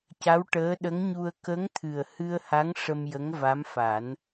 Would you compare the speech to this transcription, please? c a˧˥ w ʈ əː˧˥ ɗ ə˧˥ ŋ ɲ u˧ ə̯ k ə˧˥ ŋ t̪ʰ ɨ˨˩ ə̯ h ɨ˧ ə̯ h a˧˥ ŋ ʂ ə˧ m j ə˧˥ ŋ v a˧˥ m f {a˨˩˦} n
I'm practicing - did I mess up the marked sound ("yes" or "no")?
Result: no